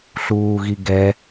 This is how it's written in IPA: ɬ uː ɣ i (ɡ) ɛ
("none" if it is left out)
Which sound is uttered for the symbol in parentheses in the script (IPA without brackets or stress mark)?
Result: ɡ